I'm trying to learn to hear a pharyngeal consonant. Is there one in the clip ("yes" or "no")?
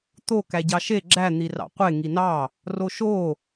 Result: no